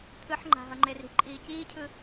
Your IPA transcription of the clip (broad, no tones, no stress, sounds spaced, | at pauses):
t̪ʰ ɯ ħ ŋ͡ǃ a̤ ɦ ʌ ŋ͡ǃ e r i̤ ǃʼ iː c iː cʰ ɯ